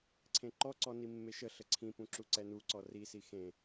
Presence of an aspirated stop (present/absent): present